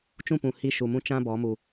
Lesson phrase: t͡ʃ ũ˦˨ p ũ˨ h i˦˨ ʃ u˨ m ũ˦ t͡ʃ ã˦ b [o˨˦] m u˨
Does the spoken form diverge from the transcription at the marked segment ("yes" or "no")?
yes